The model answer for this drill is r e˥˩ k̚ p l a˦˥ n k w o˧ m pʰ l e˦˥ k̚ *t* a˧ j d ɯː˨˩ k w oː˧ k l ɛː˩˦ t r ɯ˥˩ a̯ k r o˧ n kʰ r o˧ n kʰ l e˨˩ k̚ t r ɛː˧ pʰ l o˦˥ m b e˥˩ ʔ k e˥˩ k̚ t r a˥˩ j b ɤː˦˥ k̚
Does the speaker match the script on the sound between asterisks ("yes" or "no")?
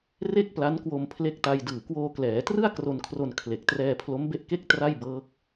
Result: yes